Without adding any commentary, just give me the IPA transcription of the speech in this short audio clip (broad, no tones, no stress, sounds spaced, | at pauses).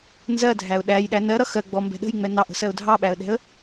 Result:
n z ɜ dʱ æ ʊ̯ ɗ æ j ɗ æ n ɜ ɾ ʌ x ɜ ɡ͡b ɔ m b ɛ̤ ɗ ə̤ j ŋ͡m ɛ n ɑ ʔ ə̤ s ɜ ʊ̯ dʱ ɑ ɓ æ ə̯ ɗ ɛ̤ ə̯